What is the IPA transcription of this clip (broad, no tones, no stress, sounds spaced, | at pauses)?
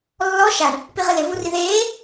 lː ɔ ʃ a ɳ | p i ʁ ɪ l ɪ v u r i ð eː